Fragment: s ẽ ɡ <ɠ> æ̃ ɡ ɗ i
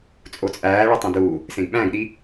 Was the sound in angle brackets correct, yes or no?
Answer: no